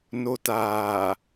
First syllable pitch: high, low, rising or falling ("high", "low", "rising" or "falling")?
low